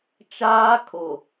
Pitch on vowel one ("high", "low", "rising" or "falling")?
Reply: high